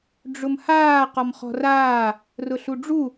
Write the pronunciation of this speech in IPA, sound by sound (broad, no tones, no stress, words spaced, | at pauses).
ɖ͡ʐʊmhaː qɔmχɔ̤raː | rʊɬuɖ͡ʐu